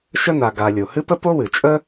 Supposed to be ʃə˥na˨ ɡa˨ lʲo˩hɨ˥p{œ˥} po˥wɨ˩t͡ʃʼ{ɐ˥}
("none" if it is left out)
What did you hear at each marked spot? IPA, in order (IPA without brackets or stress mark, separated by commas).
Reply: ə˥, ə˥